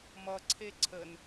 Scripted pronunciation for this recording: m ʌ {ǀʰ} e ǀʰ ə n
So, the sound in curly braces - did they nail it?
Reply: yes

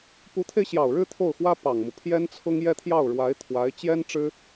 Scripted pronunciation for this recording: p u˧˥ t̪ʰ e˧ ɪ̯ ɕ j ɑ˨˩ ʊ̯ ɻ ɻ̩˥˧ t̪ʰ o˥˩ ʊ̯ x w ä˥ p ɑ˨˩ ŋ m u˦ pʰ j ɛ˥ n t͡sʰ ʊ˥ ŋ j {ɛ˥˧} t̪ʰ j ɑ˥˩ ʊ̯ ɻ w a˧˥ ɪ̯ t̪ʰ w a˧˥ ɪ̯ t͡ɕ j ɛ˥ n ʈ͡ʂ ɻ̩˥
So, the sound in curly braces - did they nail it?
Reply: yes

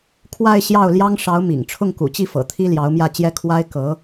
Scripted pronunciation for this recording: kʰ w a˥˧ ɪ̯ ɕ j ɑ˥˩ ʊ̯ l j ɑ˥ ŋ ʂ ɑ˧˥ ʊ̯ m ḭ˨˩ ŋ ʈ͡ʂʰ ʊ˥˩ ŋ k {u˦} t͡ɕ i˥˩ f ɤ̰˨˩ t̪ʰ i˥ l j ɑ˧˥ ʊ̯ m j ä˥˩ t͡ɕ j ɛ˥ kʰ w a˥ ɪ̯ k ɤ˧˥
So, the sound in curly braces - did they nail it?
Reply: no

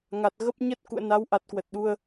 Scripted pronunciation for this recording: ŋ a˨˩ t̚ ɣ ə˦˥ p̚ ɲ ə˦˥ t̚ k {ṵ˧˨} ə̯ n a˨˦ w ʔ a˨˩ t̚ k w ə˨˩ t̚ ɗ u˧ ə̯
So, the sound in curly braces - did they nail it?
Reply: yes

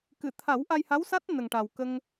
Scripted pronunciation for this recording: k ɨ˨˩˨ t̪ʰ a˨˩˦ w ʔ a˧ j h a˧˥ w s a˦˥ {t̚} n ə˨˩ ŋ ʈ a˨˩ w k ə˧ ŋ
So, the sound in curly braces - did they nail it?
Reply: yes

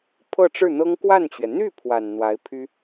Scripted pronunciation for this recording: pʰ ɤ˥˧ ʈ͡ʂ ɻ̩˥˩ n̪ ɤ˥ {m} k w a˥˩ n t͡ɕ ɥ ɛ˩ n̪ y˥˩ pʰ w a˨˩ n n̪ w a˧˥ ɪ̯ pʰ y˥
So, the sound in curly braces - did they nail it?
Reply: no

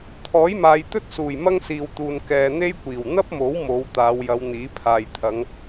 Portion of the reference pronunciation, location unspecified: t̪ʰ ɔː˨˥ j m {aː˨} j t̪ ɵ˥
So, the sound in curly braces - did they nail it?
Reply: yes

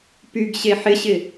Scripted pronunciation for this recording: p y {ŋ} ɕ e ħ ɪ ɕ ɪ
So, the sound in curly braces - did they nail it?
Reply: no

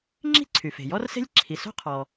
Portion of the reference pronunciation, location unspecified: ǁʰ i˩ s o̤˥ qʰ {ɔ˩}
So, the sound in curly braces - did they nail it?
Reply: yes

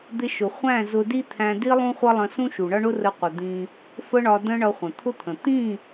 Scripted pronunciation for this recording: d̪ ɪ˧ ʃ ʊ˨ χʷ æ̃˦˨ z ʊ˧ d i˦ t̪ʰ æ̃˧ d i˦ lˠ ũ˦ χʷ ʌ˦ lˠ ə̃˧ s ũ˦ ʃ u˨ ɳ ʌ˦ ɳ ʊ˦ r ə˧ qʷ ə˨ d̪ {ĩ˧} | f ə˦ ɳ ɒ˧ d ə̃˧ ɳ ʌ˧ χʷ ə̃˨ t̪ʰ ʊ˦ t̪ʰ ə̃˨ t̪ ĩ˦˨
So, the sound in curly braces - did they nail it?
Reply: yes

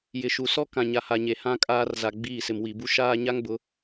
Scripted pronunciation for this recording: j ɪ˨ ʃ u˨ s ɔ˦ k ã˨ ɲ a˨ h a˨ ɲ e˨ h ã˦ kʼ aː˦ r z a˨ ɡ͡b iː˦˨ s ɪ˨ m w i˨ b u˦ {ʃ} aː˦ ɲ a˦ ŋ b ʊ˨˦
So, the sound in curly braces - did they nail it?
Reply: yes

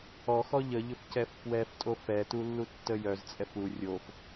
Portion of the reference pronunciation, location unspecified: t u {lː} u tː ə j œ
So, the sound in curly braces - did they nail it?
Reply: yes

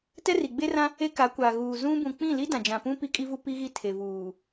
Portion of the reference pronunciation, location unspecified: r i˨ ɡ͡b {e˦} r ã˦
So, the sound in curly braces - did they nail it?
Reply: yes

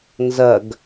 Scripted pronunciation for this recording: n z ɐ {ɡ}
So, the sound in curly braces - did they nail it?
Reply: yes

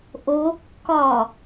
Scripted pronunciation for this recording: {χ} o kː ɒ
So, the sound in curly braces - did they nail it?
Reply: no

